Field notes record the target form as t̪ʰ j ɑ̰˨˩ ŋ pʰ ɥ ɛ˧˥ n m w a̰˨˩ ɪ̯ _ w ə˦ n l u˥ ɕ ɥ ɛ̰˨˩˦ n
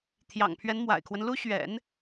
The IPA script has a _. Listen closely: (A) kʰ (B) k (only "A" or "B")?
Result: A